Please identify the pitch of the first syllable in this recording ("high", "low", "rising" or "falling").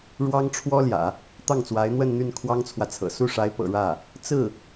high